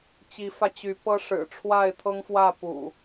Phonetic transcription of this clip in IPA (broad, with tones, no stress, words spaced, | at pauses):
t͡ɕi˨˦fä˧t͡ɕy˨˦pɤ˦ ʂɻ̩˨˩ʈ͡ʂʰwa˥˨ɪ̯t̪ʰɤ˦ŋfwä˥˨ pṵ˨˩